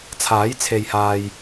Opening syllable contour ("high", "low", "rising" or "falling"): rising